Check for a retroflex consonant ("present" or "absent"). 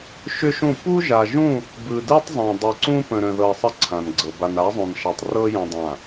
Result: absent